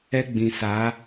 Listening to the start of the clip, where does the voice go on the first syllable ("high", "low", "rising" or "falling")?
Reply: high